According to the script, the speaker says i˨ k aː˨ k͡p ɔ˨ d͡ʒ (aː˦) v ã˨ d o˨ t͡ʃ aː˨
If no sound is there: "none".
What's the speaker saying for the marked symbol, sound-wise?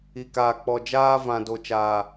aː˦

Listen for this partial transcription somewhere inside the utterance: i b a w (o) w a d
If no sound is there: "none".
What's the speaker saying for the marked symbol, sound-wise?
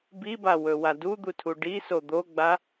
ɵ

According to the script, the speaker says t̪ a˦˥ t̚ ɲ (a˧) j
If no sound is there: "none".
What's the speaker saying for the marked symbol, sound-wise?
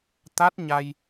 a˧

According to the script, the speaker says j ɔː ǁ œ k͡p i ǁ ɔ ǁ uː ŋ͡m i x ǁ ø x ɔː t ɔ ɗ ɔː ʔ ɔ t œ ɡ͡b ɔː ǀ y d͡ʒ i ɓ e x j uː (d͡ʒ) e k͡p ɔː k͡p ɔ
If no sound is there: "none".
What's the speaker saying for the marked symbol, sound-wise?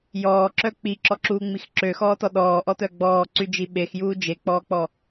d͡ʒ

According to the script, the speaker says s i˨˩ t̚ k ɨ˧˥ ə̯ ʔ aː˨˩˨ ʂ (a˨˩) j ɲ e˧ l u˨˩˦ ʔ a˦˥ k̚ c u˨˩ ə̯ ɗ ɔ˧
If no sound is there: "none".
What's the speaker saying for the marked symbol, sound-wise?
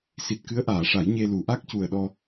a˨˩˦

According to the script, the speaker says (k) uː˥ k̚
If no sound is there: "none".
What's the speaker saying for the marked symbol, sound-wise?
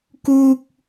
k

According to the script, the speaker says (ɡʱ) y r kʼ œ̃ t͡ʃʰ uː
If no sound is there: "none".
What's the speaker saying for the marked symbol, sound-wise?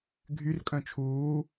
ɡʱ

